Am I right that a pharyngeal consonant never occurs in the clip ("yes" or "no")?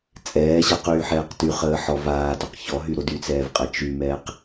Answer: no